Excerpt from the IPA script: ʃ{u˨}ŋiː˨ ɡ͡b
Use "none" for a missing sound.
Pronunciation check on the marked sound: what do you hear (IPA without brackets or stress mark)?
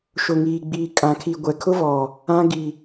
ʊ˨